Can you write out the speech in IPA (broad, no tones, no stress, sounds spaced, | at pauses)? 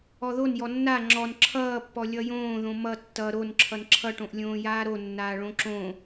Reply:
ɔ ð o n j ɔ nː a ŋ͡ǁ ɔ n ǁʰ ʌː pː ɔ lʲ ʌ j õː ð õ m ʌ tː ʌ ɾ o n ǁʰ ʌ n ǁʰ ʌ ʈ õ ʔ lʲ õː j aː ɾ o nː aː ɭ õ ǁ õ